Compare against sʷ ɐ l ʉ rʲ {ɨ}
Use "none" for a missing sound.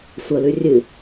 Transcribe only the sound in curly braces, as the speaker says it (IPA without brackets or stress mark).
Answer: ɨ